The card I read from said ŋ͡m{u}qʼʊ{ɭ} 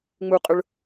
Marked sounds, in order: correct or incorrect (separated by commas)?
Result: correct, correct